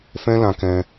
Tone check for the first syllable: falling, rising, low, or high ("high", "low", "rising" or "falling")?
high